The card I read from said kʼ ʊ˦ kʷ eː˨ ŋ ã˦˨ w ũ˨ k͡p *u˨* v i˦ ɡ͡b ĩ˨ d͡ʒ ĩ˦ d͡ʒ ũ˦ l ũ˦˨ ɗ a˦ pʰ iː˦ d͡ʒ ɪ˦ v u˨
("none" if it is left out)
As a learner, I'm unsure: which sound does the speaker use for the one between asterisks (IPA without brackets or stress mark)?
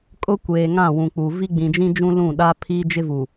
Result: u˨